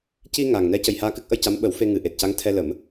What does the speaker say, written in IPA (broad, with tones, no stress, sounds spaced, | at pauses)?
c i˧ ŋ a˨˩ ŋ n ɛ˧˥ c ə˨˩ j h aː˧ k ɨ˦˥ k̚ ʔ ə˧ j c a˧˥ m ɓ ə˨˩˦ w f e˧ ŋ ɨ˨˩ ʔ e˨˩ t̚ c a˧˥ ŋ t̪ʰ ɛ˧ l ə˨˩˦ m